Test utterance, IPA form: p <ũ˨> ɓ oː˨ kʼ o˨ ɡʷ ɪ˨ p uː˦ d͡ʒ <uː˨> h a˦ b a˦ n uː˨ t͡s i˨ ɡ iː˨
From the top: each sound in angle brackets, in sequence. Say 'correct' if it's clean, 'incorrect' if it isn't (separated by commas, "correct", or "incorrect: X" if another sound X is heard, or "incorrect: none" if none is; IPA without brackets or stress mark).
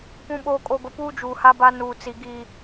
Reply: correct, correct